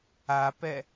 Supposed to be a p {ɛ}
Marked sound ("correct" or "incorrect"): correct